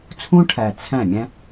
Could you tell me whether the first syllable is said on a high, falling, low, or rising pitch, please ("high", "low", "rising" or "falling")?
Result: high